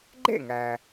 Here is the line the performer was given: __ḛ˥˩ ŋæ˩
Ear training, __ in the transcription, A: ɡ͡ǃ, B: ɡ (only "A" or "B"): A